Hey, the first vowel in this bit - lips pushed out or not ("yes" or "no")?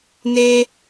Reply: no